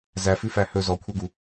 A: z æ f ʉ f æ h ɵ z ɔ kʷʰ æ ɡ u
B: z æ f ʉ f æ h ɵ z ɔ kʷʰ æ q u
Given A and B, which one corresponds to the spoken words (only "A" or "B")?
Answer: A